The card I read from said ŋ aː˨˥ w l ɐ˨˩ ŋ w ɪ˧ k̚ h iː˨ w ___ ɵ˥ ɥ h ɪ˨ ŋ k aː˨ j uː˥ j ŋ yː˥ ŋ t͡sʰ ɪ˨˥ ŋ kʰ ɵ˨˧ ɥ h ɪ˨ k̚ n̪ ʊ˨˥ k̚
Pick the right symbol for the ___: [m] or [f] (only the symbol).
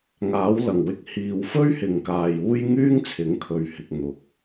f